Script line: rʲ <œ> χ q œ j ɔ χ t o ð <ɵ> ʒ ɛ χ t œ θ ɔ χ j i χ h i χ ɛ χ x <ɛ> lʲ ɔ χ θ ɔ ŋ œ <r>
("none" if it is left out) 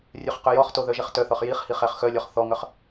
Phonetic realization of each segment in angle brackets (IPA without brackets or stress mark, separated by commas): œ, œ, œ, χ